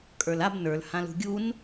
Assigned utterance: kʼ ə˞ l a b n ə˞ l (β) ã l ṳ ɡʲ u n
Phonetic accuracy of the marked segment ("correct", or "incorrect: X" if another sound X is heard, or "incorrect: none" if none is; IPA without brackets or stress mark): incorrect: h